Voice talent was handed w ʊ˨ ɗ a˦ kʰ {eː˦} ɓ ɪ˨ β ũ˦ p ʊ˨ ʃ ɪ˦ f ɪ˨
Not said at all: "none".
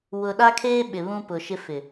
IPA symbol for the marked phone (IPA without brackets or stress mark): eː˦